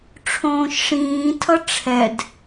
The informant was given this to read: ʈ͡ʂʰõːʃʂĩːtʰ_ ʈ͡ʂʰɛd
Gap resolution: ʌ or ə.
ʌ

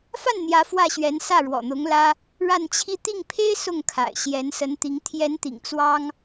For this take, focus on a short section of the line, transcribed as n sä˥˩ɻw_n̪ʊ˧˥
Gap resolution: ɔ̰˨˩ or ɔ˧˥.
ɔ̰˨˩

